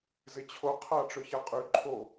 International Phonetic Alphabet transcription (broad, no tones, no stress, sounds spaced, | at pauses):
z ɪ t͡ɕʰ o qʰ a ʈ͡ʂ ø ç a qʼ y ǃʰ o